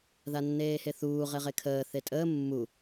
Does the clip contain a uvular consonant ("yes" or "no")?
yes